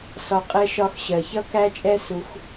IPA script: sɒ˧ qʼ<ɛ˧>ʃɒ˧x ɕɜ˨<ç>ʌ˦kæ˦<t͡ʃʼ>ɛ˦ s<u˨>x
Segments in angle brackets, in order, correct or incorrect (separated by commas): correct, correct, correct, incorrect